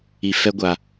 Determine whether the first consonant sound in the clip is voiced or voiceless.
voiceless